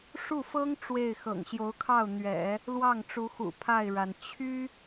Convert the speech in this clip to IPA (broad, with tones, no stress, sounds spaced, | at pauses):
ʂ u˥˩ f ɤ˥ ŋ ʈ͡ʂ w e˥˩ ɪ̯ x ɤ̰˨˩ ŋ ɕ j o˧˥ ʊ̯ kʰ ɑ˥˩ ʊ̯ n̪ ɥ ɛ̰˨˩˦ | l w ɑ˥˩ ŋ ʈ͡ʂ u˧˥ x ṵ˨˩ pʰ a˥˩ ɪ̯ ɻ a˩ n t͡ɕʰ y˥